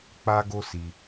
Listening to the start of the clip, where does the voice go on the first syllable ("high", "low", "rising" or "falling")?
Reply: high